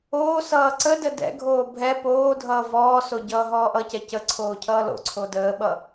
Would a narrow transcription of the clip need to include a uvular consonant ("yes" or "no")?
no